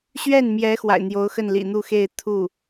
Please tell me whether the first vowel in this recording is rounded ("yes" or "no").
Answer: no